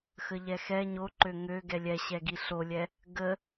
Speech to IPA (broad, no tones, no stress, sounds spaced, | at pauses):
x ə ʎ ɛ x ɛ ɲ o ǃ ø ŋ ø ɡ ɛ lʲ ɛ ɕ ɛ ɡ i ɬ o lʲ ɛ | ɡ ə